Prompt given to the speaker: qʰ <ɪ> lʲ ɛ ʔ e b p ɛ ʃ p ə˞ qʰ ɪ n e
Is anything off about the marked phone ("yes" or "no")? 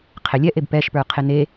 no